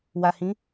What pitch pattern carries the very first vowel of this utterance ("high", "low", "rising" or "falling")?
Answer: low